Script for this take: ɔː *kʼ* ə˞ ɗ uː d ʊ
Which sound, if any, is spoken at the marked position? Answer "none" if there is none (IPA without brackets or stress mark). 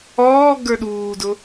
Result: ɡ